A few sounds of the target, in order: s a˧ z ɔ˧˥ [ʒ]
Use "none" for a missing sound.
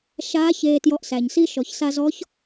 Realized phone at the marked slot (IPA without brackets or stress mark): ç